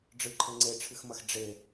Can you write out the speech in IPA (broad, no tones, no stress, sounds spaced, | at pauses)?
ɖ͡ʐ ɨ ǃʰ ɘ ŋ͡ǀ e ʈ͡ʂʰ ɨ x m ɐ x ɖ͡ʐ e